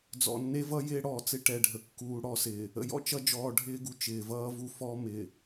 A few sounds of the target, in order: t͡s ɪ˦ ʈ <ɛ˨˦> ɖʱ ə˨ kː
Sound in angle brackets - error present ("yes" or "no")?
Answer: yes